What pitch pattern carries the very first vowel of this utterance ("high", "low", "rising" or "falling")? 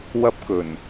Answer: high